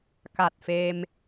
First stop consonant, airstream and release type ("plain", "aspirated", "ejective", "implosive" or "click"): plain